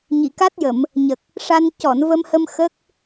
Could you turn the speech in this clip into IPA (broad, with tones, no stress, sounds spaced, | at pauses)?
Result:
ɲ i˨˩˨ k a˦˥ t̚ j ə˨˩˨ m | ɲ ə˨˩ k̚ | ʂ a˧ n c ɔ˨˩˨ n v ə˧ m h ə˧ m x ə˦˥ k̚